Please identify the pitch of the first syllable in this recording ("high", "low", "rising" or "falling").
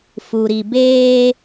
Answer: low